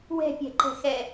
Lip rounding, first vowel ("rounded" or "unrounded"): unrounded